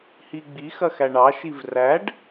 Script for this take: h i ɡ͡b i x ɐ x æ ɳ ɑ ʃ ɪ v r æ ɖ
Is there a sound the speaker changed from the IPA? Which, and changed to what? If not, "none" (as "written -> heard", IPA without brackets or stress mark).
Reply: ɪ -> i